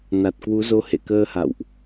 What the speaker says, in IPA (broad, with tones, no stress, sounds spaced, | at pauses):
n a˨˩ t̚ k w u˨˦ z o˧ h ḛ˧˨ k əː˧ h a̰˧˨ w ʔ